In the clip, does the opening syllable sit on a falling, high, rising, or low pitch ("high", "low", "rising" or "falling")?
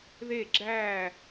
falling